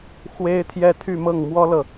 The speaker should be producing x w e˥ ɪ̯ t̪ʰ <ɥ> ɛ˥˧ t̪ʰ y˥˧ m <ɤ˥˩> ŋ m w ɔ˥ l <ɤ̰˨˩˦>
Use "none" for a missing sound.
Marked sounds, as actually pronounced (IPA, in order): j, ɤ˥˩, ɤ˨

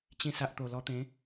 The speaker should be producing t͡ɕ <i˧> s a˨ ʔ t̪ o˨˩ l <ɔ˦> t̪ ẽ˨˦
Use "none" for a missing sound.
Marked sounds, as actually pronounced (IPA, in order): ĩ˧, ɔ˧

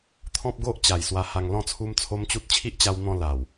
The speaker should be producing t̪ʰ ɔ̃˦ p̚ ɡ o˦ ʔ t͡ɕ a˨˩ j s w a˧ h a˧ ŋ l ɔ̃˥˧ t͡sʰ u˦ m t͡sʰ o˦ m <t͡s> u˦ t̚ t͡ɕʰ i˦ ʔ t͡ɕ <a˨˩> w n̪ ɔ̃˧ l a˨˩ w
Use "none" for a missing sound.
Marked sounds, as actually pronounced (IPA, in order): t͡ɕ, a˧

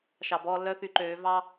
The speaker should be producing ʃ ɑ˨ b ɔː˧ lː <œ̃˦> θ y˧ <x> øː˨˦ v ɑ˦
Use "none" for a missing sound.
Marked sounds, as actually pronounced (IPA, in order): œ˦, ǃ

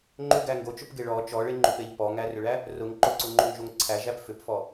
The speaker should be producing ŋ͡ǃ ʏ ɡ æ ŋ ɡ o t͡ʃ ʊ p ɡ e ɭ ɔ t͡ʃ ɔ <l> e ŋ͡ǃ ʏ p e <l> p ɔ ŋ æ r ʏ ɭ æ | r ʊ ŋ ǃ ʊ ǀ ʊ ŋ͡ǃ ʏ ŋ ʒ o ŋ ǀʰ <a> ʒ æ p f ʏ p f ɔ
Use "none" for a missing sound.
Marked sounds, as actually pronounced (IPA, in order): ɭ, ʎ, æ

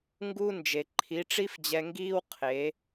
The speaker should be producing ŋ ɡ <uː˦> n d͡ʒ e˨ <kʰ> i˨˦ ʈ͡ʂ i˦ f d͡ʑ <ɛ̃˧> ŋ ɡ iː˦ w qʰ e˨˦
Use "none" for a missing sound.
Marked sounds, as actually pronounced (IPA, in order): uː˦, ǃʰ, ɛ˧

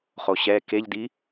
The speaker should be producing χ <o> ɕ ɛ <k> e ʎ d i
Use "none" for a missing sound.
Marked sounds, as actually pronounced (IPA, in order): o, k

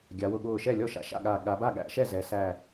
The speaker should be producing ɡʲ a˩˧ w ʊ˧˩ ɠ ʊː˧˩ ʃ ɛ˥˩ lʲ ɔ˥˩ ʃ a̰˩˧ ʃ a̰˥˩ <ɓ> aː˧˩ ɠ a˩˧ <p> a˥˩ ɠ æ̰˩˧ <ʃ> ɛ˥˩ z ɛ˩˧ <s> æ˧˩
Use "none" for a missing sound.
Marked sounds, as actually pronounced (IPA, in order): ɠ, b, ʃ, s

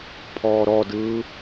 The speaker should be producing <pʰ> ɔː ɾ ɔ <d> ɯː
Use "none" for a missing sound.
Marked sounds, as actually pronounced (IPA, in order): pʰ, d

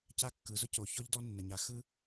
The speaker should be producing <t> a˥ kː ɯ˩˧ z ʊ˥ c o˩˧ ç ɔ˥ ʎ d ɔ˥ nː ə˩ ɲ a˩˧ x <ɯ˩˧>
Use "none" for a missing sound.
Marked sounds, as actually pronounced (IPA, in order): c, ɯ˥

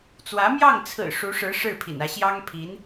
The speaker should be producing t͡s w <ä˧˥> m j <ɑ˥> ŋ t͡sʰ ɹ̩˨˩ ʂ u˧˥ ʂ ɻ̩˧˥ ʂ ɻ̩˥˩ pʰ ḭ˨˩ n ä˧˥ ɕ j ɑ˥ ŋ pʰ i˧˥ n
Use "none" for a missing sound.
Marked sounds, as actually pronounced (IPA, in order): ä˧˥, ɑ˥˩

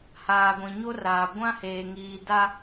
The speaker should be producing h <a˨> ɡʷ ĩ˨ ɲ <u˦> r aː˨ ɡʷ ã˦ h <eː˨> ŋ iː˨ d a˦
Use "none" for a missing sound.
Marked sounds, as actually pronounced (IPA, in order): aː˨, o˦, eː˨

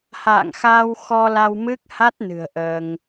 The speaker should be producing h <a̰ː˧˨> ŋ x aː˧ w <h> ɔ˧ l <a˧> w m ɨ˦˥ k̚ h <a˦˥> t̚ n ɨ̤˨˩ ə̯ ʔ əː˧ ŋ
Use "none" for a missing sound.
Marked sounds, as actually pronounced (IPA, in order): a̰ː˧˨, x, a˧, a˦˥

